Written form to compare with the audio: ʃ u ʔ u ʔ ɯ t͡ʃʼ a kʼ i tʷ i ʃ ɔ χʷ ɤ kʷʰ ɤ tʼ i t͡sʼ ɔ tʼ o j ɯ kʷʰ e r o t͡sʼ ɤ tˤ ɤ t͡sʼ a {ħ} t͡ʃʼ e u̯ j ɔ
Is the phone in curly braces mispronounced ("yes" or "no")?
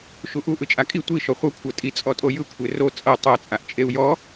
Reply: yes